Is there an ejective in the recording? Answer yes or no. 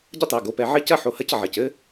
no